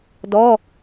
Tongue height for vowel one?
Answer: mid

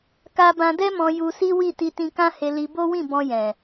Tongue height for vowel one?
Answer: low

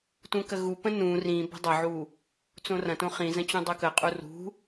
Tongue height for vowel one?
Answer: high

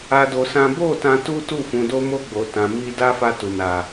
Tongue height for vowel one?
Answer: low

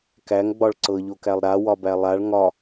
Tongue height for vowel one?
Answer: low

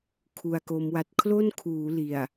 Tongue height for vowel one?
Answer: high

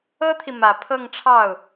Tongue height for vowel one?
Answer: mid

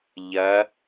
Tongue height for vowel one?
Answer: low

